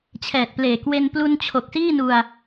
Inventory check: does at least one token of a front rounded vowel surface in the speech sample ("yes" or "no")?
no